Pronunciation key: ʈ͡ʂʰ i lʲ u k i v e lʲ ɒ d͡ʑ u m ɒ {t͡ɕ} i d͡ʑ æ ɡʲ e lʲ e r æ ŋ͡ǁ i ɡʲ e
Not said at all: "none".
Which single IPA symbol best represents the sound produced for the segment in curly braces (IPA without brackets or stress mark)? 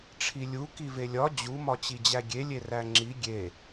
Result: t͡ɕ